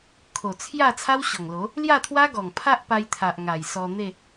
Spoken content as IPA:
kʰ o˨˩ t͡sʰ j a˥˧ t͡sʰ a˦ w ɕ ɔ˨˩ ŋ l o˨˦ | l j a˥˧ t̪ʰ w a˦ ɡ ɔ˨˩ ŋ pʰ a˦ ʔ p a˧ j t̪ʰ a˨ ʔ ŋ a˨˩ j s ɔ˧ n̪ e˥˧

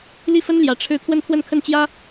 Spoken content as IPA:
l i˥˩ f ə˥ n l j ä˧˥ ʈ͡ʂʰ ɻ̩˥˧ t̪ʰ w ə˥˧ n t̪ʰ w ə˥˧ n kʰ ə˥˩ n t͡ɕ j ä˥

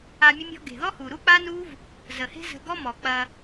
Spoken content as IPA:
a˧ mʲ ə˦ mʲ ɔ̤˦ ɡ e̤˨ ð ɔ˦ h u˨ ɾ u˦ k͡p a˦ n u˦ v | z ə˨ h e̤˦ z ə̤˧ ɡ ɔ˦ m ɔ˨ k͡p ɐ˧

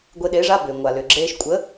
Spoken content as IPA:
ɡʷ e˧ ɗ eː˨˥ ʐ a˧˥˧ b ʏː˩ ŋʷ a˩ l ʏː˩ ɡ͡ǁ eː˧ ʃ kʷʼ ə˨˥

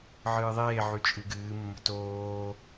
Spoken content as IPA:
ʕ ɨː ðˤ eː ʕ y t͡ʃʼ ɨ ɡ ɨː mː ə̤ t oː

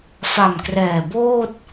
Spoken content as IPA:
f a˨˩ m k r ɛː˨˩ b oː˥˩ t̚

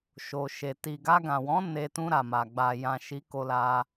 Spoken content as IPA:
ʃ o˨ ʃ e˨ t i˨ ɡ a˧ ɡ ã˨ w ɔ̃˨˦ n e˧ t ũ˧ ɾ a˨ m a˨ ɡ͡b a˨ j ã˨ ʃ i˨˦ k o˧ l a˧

